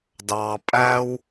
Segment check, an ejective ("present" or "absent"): present